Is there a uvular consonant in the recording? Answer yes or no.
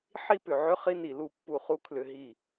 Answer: yes